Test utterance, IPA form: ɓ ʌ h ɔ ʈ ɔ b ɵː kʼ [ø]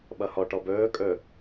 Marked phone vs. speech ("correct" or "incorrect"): incorrect